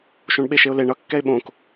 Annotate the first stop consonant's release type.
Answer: implosive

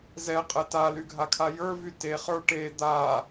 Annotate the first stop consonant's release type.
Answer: ejective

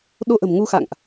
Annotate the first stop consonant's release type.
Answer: implosive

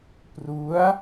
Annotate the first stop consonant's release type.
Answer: plain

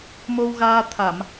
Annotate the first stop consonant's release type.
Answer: aspirated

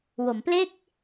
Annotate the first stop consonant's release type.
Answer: plain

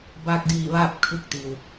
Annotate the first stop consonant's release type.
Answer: plain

